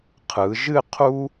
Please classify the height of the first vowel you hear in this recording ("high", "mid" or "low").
high